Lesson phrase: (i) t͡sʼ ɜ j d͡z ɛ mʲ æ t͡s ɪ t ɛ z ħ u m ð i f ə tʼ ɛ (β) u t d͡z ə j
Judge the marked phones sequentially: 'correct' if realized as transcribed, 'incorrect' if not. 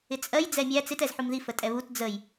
incorrect: ɪ, correct

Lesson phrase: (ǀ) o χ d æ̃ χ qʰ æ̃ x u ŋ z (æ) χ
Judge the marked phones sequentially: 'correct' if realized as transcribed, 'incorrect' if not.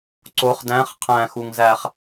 correct, correct

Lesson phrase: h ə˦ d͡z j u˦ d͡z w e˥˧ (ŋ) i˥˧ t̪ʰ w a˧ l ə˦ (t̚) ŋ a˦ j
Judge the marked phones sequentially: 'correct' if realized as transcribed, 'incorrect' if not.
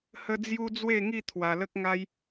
correct, incorrect: k̚

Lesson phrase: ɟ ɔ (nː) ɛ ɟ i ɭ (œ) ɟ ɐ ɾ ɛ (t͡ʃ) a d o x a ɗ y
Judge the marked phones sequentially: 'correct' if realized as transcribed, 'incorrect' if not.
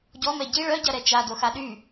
incorrect: m, correct, correct

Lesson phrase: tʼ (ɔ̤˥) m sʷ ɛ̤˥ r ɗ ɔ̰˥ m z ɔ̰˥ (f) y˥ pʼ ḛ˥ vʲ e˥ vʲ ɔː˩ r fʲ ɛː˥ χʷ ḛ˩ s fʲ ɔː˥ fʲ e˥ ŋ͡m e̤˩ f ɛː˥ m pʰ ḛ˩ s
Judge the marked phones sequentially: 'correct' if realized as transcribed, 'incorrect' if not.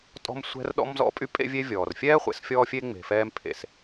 correct, incorrect: pʼ

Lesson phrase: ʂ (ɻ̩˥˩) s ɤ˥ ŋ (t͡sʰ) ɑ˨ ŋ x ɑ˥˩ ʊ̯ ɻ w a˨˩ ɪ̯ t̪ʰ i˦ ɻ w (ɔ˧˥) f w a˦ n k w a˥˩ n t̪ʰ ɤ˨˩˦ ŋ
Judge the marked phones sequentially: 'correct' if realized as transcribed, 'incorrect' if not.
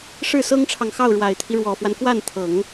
correct, incorrect: ʈ͡ʂʰ, incorrect: ɔ˨˩

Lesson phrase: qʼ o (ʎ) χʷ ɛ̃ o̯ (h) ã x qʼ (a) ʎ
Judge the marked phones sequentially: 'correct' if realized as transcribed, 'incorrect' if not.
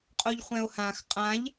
correct, correct, incorrect: ã

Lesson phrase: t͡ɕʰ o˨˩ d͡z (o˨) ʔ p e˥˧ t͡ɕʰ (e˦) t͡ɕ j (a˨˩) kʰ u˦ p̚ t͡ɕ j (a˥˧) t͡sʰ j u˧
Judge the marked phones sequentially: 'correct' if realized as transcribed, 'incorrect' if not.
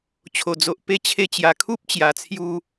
correct, incorrect: e˧, correct, incorrect: a˨˩

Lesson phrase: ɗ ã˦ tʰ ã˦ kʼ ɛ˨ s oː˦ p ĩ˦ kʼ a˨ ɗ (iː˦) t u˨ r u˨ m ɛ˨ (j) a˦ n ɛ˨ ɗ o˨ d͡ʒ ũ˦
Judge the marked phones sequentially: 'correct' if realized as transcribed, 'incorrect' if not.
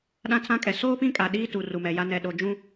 correct, correct

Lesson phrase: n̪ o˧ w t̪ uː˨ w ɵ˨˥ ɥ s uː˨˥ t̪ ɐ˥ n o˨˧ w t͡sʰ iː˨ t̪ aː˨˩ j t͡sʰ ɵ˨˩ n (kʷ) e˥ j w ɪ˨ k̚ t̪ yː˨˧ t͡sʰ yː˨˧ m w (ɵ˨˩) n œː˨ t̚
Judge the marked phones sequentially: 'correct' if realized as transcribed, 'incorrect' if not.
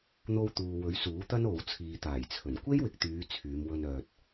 correct, incorrect: ɵ˧

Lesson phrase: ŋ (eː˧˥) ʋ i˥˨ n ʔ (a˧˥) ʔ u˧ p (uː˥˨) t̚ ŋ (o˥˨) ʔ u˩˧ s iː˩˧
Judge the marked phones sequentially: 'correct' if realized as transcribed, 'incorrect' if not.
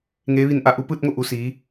correct, correct, incorrect: ɯː˥˨, correct

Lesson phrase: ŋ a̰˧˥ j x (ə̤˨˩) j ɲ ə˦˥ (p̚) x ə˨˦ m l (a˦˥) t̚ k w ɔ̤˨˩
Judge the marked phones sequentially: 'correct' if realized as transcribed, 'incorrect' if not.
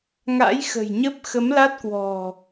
correct, correct, correct

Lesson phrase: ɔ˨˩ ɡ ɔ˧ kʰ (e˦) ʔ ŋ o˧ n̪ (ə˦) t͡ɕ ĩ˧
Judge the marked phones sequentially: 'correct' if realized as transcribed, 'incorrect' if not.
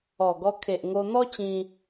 incorrect: e˨, incorrect: ɔ˦

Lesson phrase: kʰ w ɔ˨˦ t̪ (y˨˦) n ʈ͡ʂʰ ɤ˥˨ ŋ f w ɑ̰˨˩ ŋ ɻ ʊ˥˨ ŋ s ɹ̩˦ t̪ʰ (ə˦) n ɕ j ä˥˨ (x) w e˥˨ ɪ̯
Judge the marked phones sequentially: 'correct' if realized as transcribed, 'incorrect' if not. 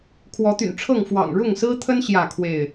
incorrect: y̰˨˩, correct, incorrect: kʰ

